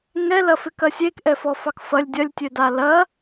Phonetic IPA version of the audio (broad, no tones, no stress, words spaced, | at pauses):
ŋɛlɐfɪkɐ sʲekʔɛfɔfɑk fɐlʲ dʲɐlʲtʲøda lɐ